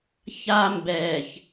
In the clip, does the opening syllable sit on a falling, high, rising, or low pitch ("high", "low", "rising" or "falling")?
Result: high